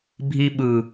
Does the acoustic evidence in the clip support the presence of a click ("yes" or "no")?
no